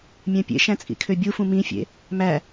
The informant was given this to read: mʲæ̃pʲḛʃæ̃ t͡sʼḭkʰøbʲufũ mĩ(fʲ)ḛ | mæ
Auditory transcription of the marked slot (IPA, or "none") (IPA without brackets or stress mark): fʲ